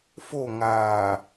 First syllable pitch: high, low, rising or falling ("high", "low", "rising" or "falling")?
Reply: falling